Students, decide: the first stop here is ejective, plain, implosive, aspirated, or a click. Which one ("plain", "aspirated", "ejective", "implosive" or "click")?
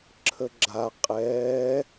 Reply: click